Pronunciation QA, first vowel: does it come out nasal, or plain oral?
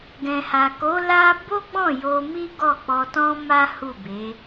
nasal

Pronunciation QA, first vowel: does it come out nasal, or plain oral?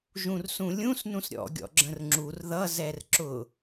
nasal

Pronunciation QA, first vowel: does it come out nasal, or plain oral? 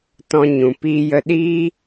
nasal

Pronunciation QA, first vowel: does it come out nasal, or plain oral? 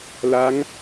oral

